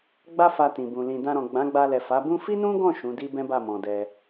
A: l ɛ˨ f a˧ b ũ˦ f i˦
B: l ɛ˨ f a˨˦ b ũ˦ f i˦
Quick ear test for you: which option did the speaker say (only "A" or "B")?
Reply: B